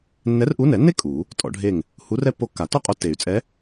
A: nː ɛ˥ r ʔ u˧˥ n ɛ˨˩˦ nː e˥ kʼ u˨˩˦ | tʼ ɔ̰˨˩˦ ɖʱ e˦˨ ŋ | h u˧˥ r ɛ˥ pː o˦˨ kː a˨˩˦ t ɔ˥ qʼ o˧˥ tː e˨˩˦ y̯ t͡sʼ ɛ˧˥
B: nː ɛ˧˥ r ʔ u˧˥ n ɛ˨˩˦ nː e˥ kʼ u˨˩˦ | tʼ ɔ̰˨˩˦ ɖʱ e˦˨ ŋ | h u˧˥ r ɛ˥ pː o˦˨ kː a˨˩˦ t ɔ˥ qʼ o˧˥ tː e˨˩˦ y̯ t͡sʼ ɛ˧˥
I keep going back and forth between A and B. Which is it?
B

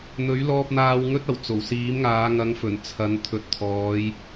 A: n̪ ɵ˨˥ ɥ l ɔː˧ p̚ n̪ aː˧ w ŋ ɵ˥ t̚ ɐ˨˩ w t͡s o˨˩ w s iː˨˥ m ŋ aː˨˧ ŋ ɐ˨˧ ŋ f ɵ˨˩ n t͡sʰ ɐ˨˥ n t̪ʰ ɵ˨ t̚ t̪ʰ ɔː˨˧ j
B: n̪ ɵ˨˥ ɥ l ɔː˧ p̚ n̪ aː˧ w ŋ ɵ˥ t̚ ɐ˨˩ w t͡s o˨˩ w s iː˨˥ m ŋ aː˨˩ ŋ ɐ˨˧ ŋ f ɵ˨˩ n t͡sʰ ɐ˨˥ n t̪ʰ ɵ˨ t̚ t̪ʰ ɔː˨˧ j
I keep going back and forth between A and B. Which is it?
A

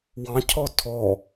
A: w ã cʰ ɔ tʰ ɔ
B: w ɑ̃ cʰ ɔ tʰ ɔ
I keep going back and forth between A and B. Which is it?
B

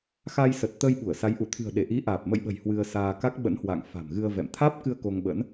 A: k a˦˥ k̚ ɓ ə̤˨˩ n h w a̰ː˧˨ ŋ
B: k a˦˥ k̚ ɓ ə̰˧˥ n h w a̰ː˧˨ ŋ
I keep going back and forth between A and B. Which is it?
B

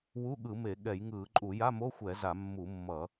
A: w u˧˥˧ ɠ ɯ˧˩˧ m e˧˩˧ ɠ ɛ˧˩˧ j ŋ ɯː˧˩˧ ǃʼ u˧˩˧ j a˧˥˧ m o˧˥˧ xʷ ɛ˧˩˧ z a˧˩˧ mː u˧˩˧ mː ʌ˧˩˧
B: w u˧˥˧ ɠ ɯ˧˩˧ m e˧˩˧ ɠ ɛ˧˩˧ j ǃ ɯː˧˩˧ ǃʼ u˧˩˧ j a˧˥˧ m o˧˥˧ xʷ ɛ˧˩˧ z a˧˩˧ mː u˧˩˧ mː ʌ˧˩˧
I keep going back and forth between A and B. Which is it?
A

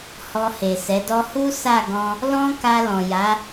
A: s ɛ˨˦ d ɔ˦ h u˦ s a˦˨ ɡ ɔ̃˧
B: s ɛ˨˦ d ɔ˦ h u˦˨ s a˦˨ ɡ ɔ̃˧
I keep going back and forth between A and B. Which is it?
A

